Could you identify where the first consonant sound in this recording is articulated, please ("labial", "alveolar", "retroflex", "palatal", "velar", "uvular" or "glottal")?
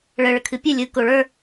retroflex